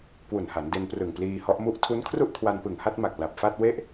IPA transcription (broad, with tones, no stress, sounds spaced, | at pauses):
k w u˨˩ n h a˩˦ n d e˧ n p r ɯ˨˩ ŋ p l iː˧ h ɔ˦˥ ʔ m u˥˩ ʔ tʰ u˦˥ n kʰ r u˥˩ ʔ kʰ w a˧ n p ɯ˨˩ ŋ h a˥˩ t̚ m a˨˩ k̚ l a˨˩ p̚ f a˥˩ t̚ w e˥˩ ʔ